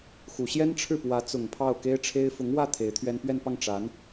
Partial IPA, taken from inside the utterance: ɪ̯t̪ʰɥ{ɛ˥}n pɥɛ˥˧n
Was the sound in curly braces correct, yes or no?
yes